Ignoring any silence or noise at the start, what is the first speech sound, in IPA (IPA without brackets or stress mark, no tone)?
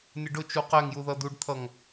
nʲ